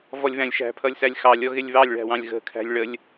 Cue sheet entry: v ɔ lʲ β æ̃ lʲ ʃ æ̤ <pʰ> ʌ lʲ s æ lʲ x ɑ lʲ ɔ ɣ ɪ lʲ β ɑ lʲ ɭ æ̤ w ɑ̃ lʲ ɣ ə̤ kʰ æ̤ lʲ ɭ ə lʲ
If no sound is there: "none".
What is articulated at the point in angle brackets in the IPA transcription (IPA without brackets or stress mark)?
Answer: pʰ